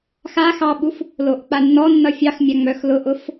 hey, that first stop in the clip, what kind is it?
implosive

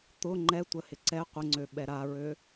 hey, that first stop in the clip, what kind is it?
plain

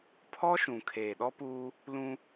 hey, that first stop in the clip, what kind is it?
aspirated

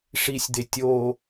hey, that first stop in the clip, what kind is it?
plain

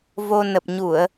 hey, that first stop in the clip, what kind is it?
plain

